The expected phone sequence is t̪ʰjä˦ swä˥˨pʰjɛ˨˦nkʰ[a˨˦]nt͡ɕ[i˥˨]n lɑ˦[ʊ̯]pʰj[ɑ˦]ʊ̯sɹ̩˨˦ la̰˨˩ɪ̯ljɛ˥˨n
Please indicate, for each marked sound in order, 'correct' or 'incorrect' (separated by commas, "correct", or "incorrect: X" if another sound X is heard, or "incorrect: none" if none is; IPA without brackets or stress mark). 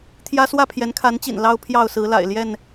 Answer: correct, incorrect: ḭ˨˩, correct, incorrect: ɑ˥˨